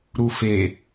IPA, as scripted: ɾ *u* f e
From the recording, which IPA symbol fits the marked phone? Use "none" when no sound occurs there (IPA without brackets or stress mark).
u